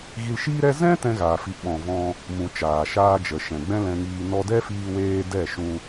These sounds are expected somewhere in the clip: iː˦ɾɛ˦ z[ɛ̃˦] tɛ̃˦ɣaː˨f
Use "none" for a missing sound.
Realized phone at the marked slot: ɛ̃˦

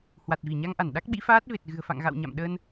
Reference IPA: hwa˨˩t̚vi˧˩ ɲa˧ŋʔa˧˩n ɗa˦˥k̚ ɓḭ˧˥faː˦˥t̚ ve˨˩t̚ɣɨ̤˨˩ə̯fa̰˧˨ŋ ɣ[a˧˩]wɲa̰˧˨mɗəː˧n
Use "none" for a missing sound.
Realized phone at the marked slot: a̰˧˨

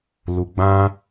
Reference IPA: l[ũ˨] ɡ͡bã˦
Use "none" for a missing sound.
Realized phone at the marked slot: u˨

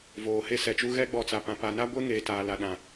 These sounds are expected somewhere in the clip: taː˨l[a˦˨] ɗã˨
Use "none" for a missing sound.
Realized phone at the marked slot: a˨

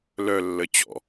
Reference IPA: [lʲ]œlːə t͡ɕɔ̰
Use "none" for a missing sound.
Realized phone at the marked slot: l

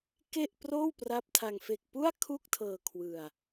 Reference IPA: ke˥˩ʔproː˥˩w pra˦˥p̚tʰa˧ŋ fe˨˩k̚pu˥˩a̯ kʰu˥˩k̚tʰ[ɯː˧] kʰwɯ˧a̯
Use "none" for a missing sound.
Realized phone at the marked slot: ɤː˧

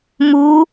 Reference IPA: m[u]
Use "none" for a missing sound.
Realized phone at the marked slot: u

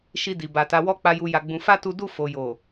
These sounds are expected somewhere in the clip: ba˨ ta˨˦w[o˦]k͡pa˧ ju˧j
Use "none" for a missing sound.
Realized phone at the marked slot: ɔ˦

